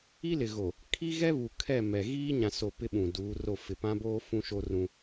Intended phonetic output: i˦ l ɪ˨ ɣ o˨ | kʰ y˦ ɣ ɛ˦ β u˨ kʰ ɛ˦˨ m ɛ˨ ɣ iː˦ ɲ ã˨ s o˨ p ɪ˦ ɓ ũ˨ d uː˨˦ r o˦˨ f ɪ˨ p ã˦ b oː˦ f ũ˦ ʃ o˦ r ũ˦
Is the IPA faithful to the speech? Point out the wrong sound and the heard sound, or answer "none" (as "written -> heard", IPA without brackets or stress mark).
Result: y˦ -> i˦